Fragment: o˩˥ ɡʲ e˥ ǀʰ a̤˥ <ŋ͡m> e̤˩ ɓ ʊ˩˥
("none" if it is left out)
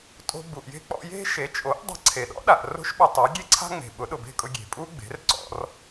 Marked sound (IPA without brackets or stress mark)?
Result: ŋ͡m